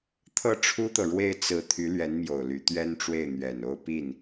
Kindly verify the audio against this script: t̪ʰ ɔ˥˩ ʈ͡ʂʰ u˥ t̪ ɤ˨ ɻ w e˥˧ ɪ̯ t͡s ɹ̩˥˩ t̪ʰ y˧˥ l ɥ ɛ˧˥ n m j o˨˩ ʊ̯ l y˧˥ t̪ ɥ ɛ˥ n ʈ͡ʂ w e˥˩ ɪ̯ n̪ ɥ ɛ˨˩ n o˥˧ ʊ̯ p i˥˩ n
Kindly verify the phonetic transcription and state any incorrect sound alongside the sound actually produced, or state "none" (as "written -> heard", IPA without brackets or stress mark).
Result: ɔ˥˩ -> ɤ˥˩